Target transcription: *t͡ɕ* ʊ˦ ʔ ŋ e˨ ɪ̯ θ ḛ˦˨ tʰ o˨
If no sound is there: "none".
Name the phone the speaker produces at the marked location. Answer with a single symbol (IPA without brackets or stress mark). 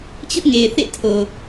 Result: t͡ɕ